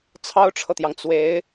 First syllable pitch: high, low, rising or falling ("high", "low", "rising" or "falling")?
high